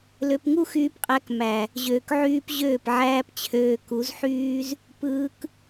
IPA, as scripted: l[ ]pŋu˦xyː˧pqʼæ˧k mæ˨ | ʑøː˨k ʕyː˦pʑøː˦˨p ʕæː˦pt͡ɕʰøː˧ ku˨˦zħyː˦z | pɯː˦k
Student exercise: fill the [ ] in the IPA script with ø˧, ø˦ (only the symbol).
ø˧